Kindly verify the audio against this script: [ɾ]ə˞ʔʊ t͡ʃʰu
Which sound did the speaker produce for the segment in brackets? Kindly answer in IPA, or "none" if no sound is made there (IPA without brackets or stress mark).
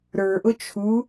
ɾ